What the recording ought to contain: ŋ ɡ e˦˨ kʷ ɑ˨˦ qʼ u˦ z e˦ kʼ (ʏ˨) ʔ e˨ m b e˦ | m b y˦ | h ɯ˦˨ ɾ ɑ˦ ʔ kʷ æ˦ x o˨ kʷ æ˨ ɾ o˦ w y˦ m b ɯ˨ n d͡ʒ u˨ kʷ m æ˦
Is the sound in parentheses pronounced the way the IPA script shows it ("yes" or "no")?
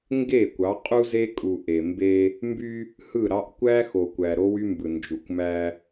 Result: no